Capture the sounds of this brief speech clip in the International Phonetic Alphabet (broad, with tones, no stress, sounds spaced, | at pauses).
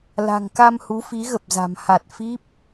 l a̤˨˩ ŋ k a˧ m h u˨˦ f i˨˦ ɣ ə˨˩ p̚ z a̤˨˩ m h a˨˩ t̚ f i˦˥ p̚